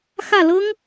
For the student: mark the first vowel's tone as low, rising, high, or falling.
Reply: falling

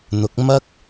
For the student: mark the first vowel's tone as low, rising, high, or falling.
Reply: rising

